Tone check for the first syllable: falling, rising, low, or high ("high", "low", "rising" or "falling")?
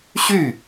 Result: falling